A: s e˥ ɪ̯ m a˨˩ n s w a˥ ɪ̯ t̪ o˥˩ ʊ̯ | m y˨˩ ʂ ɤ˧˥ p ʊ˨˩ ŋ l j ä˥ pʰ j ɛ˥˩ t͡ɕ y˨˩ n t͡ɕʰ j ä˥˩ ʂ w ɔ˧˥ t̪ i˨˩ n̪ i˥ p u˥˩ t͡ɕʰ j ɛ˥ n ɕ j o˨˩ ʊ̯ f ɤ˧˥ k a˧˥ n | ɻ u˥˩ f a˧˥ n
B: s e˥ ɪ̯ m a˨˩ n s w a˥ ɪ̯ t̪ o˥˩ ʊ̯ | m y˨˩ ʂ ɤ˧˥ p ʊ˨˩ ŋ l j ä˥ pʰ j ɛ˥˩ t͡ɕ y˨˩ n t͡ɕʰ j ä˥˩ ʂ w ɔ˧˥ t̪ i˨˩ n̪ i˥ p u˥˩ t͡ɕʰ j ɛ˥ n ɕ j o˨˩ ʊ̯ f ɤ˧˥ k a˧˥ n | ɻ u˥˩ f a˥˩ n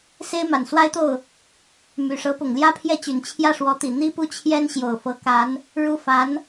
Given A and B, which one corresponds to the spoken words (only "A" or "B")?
A